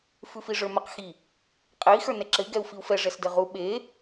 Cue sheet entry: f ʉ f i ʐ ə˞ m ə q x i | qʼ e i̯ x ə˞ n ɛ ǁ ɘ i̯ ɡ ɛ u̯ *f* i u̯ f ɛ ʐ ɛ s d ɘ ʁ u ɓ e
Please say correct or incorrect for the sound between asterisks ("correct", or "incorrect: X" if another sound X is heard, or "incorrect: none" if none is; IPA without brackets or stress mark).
correct